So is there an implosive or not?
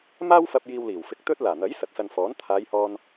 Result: no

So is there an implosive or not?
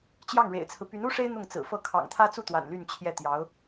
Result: no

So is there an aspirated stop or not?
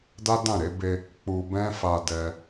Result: no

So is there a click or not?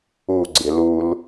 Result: yes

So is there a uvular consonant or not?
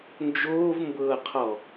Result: yes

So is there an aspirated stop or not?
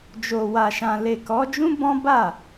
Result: no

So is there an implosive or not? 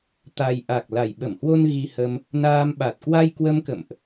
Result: yes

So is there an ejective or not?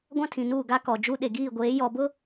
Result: no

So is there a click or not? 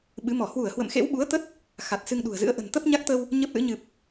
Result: no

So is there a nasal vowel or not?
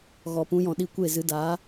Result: yes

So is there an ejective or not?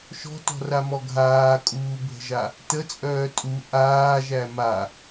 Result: yes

